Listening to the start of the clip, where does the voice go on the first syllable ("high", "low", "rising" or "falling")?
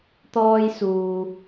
high